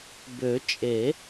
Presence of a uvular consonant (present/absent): absent